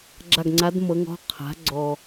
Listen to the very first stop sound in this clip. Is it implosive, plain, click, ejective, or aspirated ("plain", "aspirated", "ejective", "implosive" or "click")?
click